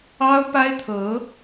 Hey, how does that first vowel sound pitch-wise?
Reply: high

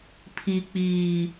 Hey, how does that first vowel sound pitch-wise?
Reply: low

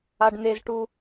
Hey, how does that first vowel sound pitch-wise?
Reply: low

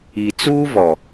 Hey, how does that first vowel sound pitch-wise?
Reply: low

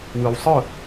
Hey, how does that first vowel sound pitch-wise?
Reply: low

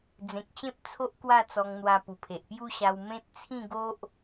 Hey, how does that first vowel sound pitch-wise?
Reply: low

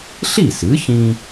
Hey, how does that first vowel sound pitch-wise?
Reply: falling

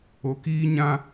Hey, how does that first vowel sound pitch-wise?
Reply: low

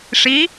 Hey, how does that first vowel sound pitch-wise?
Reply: rising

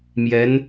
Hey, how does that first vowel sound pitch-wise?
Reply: rising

